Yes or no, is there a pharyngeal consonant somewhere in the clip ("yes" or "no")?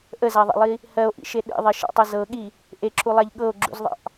no